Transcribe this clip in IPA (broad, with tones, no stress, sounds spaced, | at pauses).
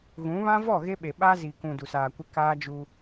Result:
ɣ ũ˨˦ β ã˦ v ɔ˦˨ ɣ e˦ ɓ e˨ ɓ a˦ z i˨ k ũ˨ d u˨ s aː˨ kʷ ɪ˦ k aː˦ d͡ʒ u˦